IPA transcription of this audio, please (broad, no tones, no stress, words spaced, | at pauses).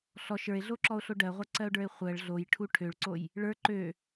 ɬɔʃ ə˞e̯ɮoǁɔo̯ɬo ɖɜʁʷɜǀɜo̯ɖə˞e̯ χʷɜɭ ɮojʈʰu ʈʰøɭǀoj | ɭə˞ ǃø